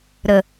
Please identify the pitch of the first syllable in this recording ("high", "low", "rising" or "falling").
low